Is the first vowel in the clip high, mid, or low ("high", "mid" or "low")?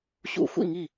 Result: high